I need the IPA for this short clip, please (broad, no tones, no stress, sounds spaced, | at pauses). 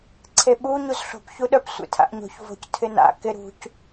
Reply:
ǀʰ e ɓ u ɲ u z ɬ o̤ p ç u ɗ œ p sʷ ḛ tʰ a̰ ʔ ɲ o̤ ç v o̤ c tʰ ɪ n a̰ k ɪ ɾ ṳ c